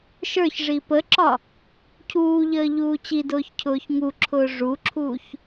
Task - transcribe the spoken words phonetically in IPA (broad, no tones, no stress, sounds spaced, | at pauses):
ʃ ə˞ ç ʐ i p ə ǁ ɒ | cʰ uː ʎ əː ʎ uː t͡ɕ i d ʊː ç cʰ ʊː ç ŋ u ǁʰ ʊː ʐ u ǁʰ uː ç